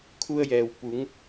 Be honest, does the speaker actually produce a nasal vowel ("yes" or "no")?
no